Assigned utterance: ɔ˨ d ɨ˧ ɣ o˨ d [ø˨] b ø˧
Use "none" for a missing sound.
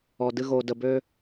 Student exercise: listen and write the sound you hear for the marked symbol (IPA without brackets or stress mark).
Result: ə˨